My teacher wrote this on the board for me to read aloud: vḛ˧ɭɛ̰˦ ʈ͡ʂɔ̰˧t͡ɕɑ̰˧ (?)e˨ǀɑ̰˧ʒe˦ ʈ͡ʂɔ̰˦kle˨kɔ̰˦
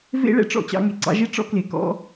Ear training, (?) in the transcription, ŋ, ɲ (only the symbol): ŋ